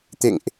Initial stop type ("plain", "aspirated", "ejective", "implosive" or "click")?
plain